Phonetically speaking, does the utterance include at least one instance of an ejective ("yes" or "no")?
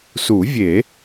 no